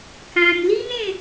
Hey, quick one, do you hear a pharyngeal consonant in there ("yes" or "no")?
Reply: no